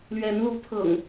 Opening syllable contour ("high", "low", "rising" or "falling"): rising